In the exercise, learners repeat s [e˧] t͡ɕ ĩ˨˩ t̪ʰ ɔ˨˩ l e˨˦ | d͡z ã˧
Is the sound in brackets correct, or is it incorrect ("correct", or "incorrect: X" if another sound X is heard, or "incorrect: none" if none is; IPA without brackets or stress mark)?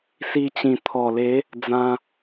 incorrect: i˧